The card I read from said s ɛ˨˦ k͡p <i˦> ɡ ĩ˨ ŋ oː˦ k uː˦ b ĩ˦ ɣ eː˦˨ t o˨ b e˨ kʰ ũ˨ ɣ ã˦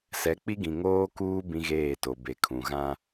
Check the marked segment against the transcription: correct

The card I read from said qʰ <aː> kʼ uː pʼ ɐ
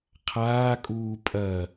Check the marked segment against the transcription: correct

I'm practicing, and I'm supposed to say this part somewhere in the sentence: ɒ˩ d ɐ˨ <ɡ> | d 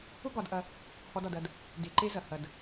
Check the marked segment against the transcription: incorrect: d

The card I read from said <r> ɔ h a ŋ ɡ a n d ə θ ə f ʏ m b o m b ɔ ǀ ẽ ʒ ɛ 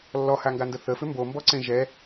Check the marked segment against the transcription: incorrect: lː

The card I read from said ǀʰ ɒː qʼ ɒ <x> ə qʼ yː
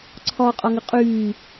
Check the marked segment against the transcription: incorrect: ŋ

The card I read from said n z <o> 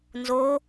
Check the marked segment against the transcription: correct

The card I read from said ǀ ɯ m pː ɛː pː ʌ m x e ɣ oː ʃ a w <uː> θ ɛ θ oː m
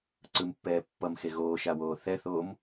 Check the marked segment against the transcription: incorrect: oː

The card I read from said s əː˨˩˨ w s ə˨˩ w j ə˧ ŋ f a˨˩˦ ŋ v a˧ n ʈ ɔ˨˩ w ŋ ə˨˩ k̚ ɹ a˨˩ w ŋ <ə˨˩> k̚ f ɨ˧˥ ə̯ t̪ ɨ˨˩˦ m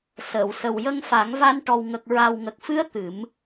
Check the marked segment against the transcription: correct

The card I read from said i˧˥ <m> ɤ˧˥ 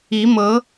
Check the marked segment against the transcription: correct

